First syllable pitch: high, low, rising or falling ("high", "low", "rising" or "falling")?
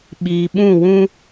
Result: low